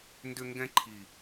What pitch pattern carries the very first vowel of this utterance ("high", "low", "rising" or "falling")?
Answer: high